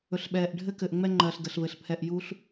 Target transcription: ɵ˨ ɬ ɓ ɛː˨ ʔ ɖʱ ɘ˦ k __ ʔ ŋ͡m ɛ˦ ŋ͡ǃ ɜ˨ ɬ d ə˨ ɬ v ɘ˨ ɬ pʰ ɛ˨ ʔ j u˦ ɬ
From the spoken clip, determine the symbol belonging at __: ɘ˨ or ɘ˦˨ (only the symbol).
ɘ˨